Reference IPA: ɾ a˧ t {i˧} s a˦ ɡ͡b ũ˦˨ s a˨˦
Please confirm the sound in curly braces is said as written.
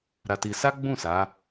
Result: yes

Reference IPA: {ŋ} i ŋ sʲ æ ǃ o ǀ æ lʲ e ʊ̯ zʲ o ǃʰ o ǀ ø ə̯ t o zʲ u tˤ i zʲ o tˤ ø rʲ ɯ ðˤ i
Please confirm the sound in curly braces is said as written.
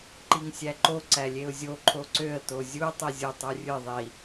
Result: no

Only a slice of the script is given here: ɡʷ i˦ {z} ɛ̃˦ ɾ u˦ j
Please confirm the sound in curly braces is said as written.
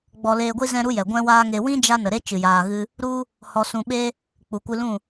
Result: yes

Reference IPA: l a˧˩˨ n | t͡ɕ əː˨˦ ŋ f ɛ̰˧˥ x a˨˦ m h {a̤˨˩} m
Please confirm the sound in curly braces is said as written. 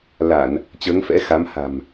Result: yes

